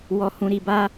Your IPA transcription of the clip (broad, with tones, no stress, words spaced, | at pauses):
wɔ˧hũ˧ɾi˧ba˦